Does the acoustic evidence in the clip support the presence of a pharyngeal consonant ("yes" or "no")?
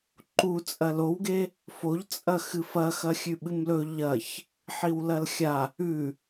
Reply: yes